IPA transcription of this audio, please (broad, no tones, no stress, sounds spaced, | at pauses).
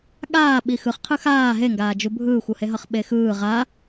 ɠ aː ɓ i x ɯ χ qʰ ɯ x aː ɦ e ŋ ɡ aː d͡ʒ u bʱ ɯː xʷ u h e ɦ ʌ χ ɓ e x ɯː ʁ a